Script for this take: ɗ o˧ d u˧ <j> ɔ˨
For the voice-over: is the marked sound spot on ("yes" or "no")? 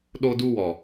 no